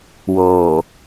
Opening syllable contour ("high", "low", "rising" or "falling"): low